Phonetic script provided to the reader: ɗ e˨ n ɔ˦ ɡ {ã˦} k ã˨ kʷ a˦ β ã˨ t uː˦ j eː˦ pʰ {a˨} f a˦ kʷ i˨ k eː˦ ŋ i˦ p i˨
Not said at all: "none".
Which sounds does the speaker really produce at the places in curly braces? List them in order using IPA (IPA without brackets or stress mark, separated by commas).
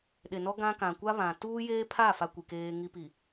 ã˦, a˦˨